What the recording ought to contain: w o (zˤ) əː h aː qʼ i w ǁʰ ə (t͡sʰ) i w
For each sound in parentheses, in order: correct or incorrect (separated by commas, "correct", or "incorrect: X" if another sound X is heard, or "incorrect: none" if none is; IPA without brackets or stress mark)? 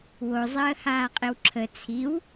correct, correct